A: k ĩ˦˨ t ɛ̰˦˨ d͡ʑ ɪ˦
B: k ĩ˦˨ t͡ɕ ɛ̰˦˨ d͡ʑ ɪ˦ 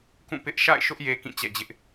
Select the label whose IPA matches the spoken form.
B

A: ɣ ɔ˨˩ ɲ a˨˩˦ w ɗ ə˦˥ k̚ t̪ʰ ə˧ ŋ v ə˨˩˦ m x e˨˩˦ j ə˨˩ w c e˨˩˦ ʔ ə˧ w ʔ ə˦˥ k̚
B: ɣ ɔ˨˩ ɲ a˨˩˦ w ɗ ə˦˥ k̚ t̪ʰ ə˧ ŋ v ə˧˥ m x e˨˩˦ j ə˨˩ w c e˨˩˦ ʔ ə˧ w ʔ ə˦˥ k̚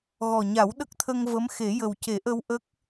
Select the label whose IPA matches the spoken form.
B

